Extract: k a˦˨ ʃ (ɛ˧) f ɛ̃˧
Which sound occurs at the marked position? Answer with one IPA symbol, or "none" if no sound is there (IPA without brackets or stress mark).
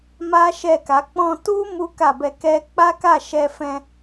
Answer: ɛ˧